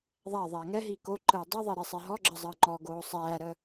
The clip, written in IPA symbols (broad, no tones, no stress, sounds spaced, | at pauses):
ðˤ æ ðˤ æː ŋ ɛ ɦ iː k o ǃ əː dˤ i ðˤ e ɾ e sˤ ɛ ɦ ɔ ɡ͡ǁ ə zˤ əː ŋ͡ǃ ɔ ɡ oː sˤ æː ɾ ə